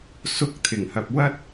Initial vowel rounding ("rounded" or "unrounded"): rounded